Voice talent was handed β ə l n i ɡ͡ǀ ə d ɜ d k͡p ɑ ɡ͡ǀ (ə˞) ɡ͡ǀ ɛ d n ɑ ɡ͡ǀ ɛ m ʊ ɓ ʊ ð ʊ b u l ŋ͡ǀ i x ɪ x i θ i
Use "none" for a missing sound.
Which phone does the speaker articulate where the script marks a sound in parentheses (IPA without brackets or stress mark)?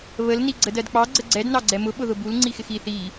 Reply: ə